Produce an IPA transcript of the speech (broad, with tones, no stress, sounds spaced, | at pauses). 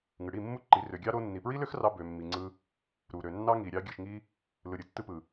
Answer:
ŋ ɯ˨ ɽ i˦˨ mː u˦ ǃ i˨˦ r ø˨ ɡʲ ɑ˦ ɾ o˦ nː i˨ p ɹ i˦ l ø˦ x r ɑ˧ b ø˧ mː i˧ ŋ͡ǀ ɯ˦ | ɾ u˨ ɾ ø˨ nː ɑ˦ ŋ i˨ ɾʲ ɑ˧ ɡʲ ɯ˨ ʃ ŋ i˧ | l ɯ˨ ɾʲ ɯ˨ tː ɯ˧ p ɯ˨